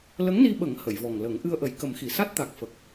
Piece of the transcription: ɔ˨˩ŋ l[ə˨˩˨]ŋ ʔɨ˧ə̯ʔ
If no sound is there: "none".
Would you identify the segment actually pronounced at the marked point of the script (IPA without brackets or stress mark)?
ə˨˩˦